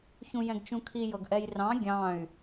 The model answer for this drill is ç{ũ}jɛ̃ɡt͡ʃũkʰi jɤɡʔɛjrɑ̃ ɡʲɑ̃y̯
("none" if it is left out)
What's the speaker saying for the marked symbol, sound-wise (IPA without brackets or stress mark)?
ũ